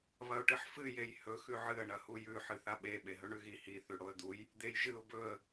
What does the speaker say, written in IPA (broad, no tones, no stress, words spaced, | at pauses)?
βɐʊ̯ʈɨħfɨ jejhɵ xʉʕɨə̯ ɳɐhujʉ ħɨθaɓe ɓeɦɵɳʉɣi hi θʉɽoə̯d̪uj | d̪ejʒɨʊ̯ bɵə̯